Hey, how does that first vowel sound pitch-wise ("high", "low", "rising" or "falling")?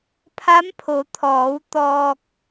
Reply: rising